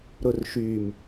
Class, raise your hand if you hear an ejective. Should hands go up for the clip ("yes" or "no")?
no